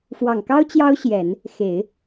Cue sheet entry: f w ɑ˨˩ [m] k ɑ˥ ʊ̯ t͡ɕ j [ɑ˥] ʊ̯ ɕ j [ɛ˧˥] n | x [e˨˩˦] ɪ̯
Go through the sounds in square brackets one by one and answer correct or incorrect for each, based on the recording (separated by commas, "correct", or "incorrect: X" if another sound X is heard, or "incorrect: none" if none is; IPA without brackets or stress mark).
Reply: incorrect: ŋ, correct, incorrect: ɛ˨˩˦, correct